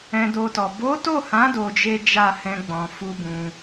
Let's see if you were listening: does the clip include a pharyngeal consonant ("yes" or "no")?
no